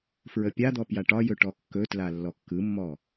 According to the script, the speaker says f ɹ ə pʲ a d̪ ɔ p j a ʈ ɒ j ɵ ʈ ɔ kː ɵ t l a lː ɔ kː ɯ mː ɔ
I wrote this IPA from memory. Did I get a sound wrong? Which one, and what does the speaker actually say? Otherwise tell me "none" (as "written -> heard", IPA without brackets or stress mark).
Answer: none